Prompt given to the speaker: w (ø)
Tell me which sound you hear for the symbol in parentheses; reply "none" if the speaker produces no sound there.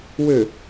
ø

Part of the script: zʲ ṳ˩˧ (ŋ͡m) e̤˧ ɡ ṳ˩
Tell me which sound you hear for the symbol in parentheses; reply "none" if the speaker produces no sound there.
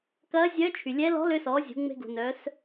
ŋ͡m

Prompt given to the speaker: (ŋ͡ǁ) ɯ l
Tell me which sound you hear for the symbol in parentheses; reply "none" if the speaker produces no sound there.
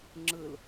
ŋ͡ǁ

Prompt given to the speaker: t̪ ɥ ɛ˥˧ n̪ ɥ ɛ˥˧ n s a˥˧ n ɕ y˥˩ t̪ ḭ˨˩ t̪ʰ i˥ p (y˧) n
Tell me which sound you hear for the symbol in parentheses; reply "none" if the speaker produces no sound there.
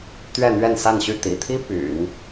y̰˨˩˦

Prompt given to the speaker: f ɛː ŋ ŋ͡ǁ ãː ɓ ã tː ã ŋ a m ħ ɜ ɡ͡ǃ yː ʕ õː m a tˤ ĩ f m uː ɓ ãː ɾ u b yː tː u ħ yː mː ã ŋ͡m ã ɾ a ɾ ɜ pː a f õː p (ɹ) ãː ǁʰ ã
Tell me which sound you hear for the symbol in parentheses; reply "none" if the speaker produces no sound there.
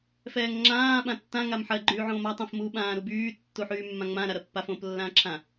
lː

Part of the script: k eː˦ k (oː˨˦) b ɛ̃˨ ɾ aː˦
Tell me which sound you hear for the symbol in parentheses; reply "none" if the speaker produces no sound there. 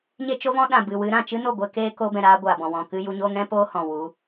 oː˧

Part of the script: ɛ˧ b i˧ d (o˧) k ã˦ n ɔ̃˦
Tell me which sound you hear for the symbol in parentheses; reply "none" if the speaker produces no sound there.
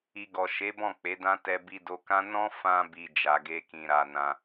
o˧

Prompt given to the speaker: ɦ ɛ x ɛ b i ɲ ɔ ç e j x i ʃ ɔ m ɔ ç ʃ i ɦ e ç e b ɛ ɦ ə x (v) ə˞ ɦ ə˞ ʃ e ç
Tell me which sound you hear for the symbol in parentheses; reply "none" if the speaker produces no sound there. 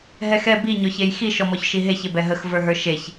v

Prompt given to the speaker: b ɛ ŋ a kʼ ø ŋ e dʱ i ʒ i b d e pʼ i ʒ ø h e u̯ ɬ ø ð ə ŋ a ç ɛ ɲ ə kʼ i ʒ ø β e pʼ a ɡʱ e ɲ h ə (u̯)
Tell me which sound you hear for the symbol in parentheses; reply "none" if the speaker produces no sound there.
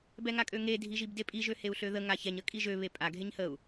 u̯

